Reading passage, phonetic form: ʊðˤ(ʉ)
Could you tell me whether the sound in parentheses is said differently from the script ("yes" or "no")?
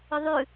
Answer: no